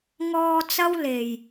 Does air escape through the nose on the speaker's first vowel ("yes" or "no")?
no